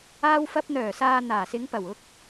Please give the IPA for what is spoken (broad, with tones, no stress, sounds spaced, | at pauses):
aː˧ w f ɐ˧ p̚ n̪ œː˨˩ s aː˨ n̪ aː˨˩ s ɪ˨˧ ŋ p ɐ˨˩ w ʊ˧ k̚